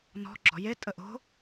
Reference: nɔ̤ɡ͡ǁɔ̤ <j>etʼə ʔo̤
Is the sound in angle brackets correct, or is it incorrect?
correct